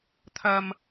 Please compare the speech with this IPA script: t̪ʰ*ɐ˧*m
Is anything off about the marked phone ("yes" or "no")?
no